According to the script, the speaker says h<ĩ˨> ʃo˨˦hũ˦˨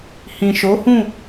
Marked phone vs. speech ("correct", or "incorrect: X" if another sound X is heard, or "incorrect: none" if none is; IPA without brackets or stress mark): correct